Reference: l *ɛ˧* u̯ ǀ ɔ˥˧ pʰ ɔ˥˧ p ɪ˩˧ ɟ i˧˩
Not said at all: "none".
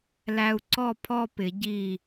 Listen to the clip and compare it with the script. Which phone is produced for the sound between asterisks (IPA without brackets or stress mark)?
æ˧